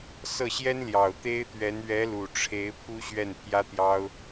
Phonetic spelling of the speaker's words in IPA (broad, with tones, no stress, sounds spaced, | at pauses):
s ɤ˥˩ ɕ j ɛ˥ n l j ɑ˨˩ ʊ̯ t̪ e˥ ɪ̯ t̪ ɥ ɛ˧˥ n ɥ ɛ˧˥ l u˨˩ ʈ͡ʂʰ e˧˥ ɪ̯ pʰ u˥ ɕ ɥ ɛ˥˩ n pʰ j ä˥ t̪ j ɑ˥ ʊ̯